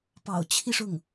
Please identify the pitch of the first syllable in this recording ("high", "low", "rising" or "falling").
low